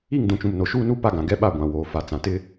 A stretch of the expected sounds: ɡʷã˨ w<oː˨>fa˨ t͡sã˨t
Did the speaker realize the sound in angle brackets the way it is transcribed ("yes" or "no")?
yes